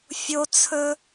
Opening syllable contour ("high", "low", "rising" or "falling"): high